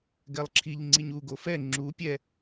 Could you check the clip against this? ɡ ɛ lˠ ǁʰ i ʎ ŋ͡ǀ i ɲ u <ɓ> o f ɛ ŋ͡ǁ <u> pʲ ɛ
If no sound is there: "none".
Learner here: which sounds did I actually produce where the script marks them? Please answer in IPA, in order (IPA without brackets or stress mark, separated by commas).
ɡ, u